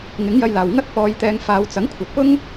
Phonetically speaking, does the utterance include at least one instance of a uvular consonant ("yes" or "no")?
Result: no